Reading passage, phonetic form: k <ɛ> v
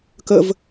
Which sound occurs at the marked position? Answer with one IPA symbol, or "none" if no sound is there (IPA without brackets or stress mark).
ə